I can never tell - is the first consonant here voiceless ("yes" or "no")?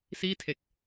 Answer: yes